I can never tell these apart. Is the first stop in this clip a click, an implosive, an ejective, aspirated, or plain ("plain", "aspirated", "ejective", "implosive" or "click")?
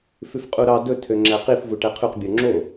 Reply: ejective